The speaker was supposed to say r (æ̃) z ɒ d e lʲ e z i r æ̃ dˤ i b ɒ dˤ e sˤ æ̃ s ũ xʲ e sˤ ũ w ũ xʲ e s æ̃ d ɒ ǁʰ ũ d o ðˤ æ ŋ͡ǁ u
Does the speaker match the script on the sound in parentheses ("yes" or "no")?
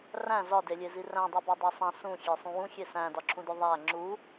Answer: yes